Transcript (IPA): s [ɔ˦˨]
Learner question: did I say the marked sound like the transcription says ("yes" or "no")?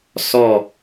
yes